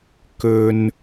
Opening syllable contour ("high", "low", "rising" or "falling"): low